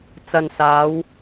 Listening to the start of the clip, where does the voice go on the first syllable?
low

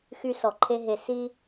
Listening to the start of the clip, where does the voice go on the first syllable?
high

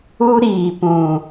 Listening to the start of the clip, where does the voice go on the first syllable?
high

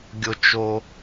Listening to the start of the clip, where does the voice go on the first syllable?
high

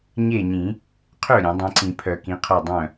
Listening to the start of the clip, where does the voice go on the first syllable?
falling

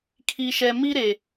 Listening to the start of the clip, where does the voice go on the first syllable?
low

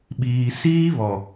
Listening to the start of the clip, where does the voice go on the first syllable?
low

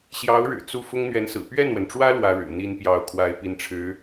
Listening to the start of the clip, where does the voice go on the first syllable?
rising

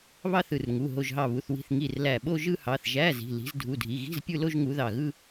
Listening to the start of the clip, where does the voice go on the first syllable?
falling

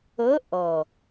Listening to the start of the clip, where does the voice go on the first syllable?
rising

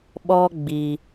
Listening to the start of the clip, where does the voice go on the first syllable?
high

